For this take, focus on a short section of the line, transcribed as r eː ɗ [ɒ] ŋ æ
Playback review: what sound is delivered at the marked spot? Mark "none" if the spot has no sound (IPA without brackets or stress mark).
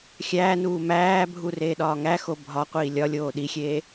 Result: ɒː